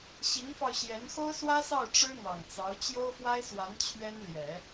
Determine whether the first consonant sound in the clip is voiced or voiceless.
voiceless